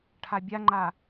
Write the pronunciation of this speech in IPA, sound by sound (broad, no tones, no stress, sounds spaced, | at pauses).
ʈʰ a bʲ a ŋ͡ǃ a